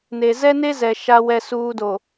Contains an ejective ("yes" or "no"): no